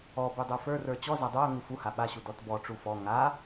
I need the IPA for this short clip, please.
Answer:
ɔby dˤə˞fə˞rə˞ t͡ɕɔ zadˤə˞ʊ̯ŋu fuha ɓaɕu dɔtbɔʈ͡ʂu fɔ ŋa

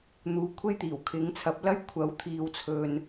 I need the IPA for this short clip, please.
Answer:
n̪uː˨˧kʷʰe˥jt̪iː˨˩w kʰɪ˨˥ŋt͡sʰɐ˨˥p̚lɐ˥j kʷʰɐ˨˥wt̪ʰiː˨wt͡sʰɵ˨n

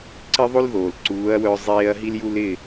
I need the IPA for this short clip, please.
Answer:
ǀɪ˥ðˤo˥l ðoː˩l ǀuː˩˥ɐ̯wœ˧ zˤeː˥ɐ̯ ɦi˥lju˥l ɪ˥˩

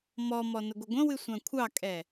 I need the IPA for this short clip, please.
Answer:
mɔmɔ nəɡʷɪɡʷə̃wɨ sʷãkʷʰɑkʼɛ

